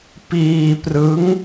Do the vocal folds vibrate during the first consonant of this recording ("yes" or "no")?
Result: no